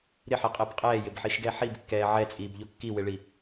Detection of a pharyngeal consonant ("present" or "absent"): present